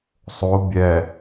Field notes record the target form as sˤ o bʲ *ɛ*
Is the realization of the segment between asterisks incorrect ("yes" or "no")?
no